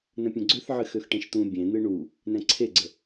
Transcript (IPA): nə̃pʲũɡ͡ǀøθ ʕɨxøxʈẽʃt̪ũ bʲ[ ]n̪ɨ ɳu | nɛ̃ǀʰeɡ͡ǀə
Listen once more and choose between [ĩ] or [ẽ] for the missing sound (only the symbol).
ẽ